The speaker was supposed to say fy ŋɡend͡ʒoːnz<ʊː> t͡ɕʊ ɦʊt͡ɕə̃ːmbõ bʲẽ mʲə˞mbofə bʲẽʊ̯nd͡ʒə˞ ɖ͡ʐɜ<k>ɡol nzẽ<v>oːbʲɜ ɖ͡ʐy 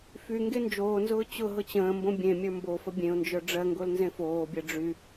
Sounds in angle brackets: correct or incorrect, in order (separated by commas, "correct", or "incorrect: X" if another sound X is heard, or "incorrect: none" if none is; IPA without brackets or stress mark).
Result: correct, incorrect: ŋ, incorrect: f